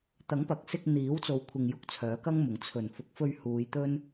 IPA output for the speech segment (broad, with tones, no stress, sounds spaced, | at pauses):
t̪ ɐ˨˥ ŋ p ɐ˨˥ k̚ s ɪ˧ k̚ n̪ iː˨˥ w t͡s o˧ w kʷʰ ɪ˧ ŋ j ʊ˧ k̚ t͡sʰ œː˨˥ k ɐ˥ ŋ m ʊ˨ ŋ t͡sʰ ɵ˨˩ n f ʊ˨ k̚ f ɵ˧ ɥ h uː˨˧ j t̪ ɵ˥ n